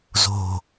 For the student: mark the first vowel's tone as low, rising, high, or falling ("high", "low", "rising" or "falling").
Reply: low